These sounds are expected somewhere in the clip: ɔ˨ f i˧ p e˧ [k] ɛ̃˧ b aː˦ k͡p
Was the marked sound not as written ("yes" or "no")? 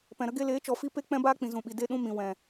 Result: yes